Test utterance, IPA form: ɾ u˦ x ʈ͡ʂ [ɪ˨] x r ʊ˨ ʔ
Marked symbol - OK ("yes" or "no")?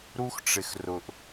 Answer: yes